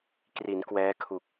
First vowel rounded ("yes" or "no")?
no